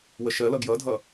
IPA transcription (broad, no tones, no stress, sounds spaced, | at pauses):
w ə ʃ ɜ l ʌ ɡ j ʌ dʱ ʌ